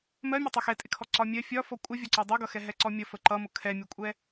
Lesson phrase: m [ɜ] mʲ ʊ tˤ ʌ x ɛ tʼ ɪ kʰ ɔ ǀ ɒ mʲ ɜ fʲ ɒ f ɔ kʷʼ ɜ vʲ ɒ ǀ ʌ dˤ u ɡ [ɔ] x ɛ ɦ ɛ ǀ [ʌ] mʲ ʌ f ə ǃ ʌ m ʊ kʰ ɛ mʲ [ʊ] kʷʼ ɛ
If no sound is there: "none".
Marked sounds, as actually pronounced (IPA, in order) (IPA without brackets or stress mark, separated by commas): ɜ, ʌ, ɔ, ʊ